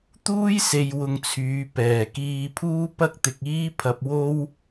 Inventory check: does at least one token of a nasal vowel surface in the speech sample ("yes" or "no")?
no